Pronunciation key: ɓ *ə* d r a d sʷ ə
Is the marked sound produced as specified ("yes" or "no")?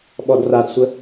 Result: no